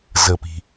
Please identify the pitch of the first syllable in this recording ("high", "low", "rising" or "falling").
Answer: low